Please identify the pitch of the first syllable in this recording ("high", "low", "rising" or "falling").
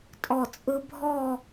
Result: falling